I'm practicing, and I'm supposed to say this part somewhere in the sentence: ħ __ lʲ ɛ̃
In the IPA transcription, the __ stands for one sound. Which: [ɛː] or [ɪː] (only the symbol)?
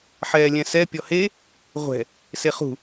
ɛː